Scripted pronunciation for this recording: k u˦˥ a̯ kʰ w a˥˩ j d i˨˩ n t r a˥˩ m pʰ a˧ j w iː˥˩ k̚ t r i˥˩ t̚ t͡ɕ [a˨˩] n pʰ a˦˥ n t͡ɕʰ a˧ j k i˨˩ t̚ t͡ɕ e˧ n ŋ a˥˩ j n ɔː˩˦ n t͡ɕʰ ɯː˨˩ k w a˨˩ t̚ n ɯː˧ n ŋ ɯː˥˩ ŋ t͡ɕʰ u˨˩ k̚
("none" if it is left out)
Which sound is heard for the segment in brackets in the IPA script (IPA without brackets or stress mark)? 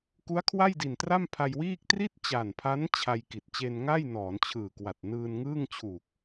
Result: a˨˩